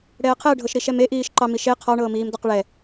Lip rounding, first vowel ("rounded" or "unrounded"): unrounded